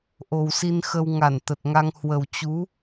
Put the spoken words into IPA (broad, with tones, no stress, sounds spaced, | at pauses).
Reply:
ʔ o˨˩ w s i˧ n x ə˧ w ŋ a˧˩ n t̪ ə˨˩ t̚ ŋ a˧ ŋ h w ə˨˩ w t͡ɕ u˨˦